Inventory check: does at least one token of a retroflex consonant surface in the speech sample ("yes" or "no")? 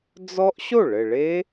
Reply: yes